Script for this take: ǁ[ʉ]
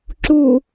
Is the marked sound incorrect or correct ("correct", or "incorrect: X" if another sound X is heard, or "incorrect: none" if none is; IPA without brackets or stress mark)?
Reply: incorrect: u